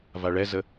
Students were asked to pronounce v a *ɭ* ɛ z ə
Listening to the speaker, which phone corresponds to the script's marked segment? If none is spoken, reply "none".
ɭ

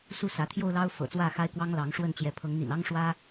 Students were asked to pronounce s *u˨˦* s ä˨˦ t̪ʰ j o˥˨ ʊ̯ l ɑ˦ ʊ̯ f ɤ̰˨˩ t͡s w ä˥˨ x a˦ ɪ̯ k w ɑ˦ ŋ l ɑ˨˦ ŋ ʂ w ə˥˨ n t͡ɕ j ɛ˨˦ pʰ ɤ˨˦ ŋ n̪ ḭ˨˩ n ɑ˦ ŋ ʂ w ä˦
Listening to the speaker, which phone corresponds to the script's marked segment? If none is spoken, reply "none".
u˥˨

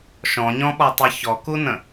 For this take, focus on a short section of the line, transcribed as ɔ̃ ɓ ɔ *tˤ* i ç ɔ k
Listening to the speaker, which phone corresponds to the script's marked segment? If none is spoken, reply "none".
tˤ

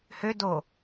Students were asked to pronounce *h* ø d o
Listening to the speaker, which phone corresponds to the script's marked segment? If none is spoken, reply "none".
h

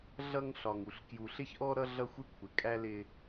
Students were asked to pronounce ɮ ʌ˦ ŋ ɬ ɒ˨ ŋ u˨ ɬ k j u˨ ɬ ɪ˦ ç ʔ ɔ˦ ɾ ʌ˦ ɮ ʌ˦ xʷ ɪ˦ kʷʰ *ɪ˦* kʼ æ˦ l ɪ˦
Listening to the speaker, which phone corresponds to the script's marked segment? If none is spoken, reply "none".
ɪ˨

